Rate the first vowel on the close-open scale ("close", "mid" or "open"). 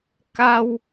open